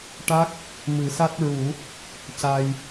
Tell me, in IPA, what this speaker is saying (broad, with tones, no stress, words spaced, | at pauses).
ʈa˦˥k̚ | mɨ˨˩˦sa˦˥t̚ ɹu˨˩˦ | ca˧j